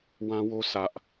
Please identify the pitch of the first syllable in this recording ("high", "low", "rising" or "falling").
high